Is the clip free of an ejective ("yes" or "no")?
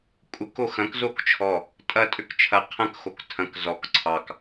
no